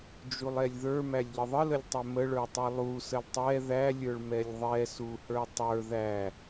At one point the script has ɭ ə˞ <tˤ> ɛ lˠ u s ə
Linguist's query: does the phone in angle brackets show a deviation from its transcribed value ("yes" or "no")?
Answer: no